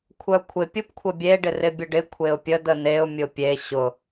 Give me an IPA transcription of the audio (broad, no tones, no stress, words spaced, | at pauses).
kʷʰœkʷʰɪ pʲupkʷʰəbʲe ɖɪrɪbʲʊɖɪ kʷʰeʊ̯pʲəd əneʊ̯ mʲʊpʲe ɕʊ